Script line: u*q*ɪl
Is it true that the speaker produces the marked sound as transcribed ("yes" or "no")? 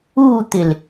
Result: no